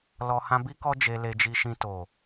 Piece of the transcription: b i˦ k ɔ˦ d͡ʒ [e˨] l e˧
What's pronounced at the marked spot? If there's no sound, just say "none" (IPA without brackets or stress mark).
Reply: e˧